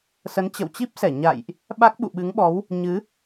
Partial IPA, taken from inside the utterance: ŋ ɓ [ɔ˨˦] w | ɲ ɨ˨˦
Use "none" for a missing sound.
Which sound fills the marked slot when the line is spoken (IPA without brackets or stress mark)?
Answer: ɔ˨˦